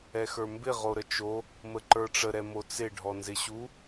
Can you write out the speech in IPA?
ɛ x ə˞ m b ɪ ʁ o ɾ ə t͡ʃ o | m ə ǃ ə˞ ʈ͡ʂ ə ɾ ɛ m o t͡s ɪ ɖʱ ɔ n z ɪ ɕ u

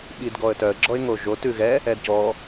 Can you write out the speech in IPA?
ɓ i d ɡ ɔ ə̯ t œ ə̯ ɡ͡ǁ ɔ ɪ̯ ŋ o ʒ o t ʉ ɣ ɛ | ɛ d c ɔ

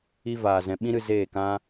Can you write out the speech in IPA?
i˦ v aː˨ z ɛ̃˨ ɓ ĩ˦ ɾ ɨ˧ z eː˦˨ k ã˦

